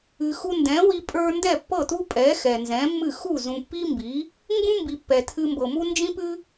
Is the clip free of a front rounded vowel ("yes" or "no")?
yes